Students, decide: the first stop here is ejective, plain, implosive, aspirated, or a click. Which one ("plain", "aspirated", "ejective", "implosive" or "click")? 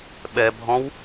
implosive